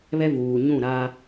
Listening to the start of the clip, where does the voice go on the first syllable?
high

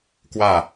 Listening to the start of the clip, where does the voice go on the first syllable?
falling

